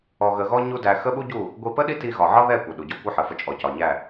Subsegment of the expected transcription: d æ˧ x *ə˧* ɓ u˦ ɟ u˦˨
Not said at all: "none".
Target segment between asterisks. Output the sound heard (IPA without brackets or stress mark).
ə˦